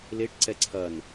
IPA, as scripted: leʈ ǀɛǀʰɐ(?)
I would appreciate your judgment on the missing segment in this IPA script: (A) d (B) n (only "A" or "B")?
B